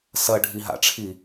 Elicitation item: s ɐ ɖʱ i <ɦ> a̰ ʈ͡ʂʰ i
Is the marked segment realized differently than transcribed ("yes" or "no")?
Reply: no